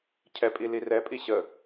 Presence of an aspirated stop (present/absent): present